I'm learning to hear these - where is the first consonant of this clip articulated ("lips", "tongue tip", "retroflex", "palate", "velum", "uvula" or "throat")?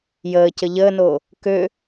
palate